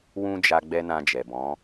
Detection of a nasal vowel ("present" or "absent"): present